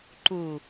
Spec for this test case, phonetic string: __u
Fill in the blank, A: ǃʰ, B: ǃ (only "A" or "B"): B